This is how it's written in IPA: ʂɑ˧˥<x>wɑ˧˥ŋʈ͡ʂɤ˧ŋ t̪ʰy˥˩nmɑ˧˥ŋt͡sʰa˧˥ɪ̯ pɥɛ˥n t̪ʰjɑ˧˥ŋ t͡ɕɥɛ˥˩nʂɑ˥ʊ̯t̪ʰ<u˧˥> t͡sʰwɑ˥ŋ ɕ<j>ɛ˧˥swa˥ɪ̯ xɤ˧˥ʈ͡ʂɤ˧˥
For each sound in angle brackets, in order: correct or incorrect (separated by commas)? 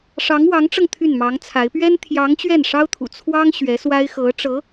incorrect, incorrect, incorrect